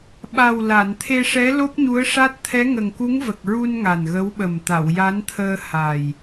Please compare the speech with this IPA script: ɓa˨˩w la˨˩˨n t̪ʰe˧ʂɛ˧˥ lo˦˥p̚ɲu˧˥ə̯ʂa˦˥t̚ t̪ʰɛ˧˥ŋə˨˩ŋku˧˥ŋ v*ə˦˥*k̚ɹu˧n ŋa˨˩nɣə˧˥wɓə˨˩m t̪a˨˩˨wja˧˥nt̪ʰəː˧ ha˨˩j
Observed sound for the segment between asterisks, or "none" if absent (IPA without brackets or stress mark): ə˨˩